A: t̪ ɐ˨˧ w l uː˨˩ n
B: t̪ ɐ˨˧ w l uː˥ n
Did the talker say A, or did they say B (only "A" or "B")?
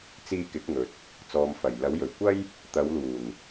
A